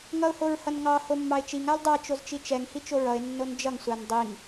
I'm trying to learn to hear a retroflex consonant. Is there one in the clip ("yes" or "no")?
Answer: no